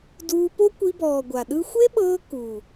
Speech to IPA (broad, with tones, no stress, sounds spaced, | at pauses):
d uː˧ p o˦ kʷ i˧ b ɔː˨ ɡʷ a˨ ɗ ɯ˦ xʷ e˦ ɓ ɤː˧ k u˨